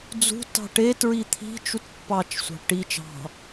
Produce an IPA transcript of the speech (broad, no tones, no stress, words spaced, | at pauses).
d͡zṳ tɑ̤ʈe tɹit̪ʰi̤ t͡ʃutpːɑt͡ʃ sʷɑ̤ʈi t͡ʃɑ̤